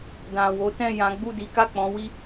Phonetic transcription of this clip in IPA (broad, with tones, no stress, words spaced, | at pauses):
dã˨wo˨˦tɛ̃˦˨ jã˨˦ɡ͡bu˦˨ di˨˦ka˦˨k͡pɔ̃˨˦wi˦